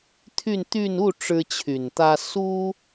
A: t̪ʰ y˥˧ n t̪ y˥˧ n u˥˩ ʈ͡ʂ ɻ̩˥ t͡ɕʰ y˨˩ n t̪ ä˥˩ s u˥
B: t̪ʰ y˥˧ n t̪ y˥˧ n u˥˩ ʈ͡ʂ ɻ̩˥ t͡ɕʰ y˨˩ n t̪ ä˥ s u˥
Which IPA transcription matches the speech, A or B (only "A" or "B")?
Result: B